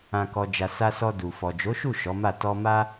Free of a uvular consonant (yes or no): yes